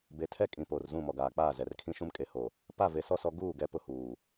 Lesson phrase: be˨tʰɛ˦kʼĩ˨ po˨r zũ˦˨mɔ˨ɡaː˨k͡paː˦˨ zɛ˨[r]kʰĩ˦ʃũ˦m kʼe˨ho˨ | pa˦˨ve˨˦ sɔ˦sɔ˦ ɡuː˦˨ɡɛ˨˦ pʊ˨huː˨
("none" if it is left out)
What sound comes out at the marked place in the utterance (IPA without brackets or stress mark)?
r